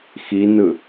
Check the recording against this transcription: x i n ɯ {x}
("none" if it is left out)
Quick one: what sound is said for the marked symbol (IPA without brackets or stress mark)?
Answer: none